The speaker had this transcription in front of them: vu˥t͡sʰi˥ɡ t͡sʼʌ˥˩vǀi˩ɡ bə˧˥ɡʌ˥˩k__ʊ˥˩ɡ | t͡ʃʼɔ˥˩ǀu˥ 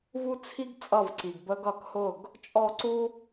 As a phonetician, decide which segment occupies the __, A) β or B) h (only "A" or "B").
B